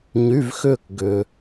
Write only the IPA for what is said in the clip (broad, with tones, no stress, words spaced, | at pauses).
ɲy˧˥˧vxʏː˥˧k ɡʏː˨